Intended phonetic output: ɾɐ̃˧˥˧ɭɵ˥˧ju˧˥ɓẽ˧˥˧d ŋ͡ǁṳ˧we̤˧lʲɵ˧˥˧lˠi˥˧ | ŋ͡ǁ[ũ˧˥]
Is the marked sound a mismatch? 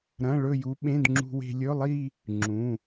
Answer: yes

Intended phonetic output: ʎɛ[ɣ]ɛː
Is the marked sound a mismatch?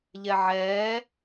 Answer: yes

